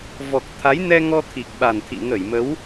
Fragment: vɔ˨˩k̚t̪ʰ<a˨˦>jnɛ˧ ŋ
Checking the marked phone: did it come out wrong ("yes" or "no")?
no